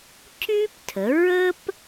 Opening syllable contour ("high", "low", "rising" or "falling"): high